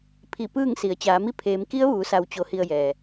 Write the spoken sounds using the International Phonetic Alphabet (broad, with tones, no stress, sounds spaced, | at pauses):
pʰ i˧˩ p ɯː˥˨ ŋ s i˩˧ ə̯ t͡ɕ aː˩˧ m i˧˥ pʰ eː˩˧ m k i˧˥ ə̯ ʋ uː˩˧ s a˩ w t͡ɕ o˧ h i˧ ə̯ j ɛː˩